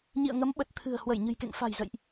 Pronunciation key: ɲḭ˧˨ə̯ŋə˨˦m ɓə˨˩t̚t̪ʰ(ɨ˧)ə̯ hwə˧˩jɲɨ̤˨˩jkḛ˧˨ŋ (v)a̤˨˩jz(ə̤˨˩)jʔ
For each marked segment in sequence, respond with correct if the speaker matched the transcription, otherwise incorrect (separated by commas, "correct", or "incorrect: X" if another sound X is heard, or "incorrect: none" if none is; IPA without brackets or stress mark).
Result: incorrect: ɨ̤˨˩, incorrect: f, incorrect: ə̰˧˨